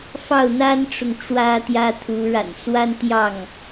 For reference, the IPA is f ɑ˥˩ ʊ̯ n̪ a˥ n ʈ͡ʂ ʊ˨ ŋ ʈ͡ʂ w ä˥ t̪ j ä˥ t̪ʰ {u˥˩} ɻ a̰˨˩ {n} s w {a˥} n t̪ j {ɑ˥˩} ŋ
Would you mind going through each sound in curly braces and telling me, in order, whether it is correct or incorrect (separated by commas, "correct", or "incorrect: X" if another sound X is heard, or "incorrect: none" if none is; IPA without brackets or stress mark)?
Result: incorrect: u˧˥, correct, correct, correct